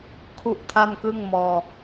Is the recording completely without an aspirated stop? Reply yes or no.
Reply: no